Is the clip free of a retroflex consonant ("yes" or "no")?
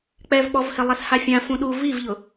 yes